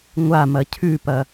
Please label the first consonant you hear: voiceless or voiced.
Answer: voiced